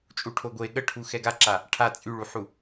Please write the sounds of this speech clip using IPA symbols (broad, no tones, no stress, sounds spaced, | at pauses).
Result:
t͡ʃʼ u ʈʰ o ɡʷ e ɠ ə ʈʰ u x ɛ ɡ a ǁ a | ʈʰ a t͡sʼ y ɭ u ħ u